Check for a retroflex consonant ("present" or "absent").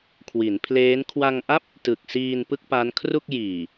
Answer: absent